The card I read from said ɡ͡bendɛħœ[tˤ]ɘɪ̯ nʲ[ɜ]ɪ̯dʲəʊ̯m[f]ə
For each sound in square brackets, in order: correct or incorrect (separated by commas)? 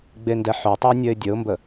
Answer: correct, correct, incorrect